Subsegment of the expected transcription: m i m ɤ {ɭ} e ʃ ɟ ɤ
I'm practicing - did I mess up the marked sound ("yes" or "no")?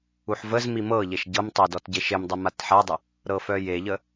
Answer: yes